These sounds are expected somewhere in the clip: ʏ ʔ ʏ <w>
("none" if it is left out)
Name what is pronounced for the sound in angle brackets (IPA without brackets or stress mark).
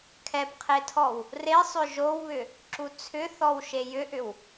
w